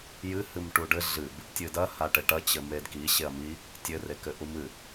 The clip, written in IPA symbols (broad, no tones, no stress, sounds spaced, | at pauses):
j ɨ h ɨ m ʈ u ɖ ɘ ɮ ɨ b | tʲ ɨ d ɐ h a ʈ ɘ ʈ ɐ t͡ɕ ɘ m e d k i ɕ e ɐ̯ m i | tʲ ɘ r e k ɘ ʔ u m ɨ